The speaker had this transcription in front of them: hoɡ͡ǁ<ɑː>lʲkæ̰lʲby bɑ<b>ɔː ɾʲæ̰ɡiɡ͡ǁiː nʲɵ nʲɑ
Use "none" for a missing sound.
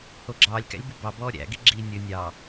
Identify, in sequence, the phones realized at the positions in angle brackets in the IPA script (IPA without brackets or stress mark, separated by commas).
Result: ɑː, b